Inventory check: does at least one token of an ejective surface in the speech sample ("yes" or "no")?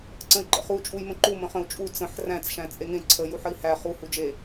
yes